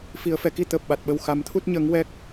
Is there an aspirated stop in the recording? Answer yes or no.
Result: yes